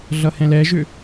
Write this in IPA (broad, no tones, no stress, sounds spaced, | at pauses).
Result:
ɮ ʌ h ɛ̃ l ɛ ʒ ʏ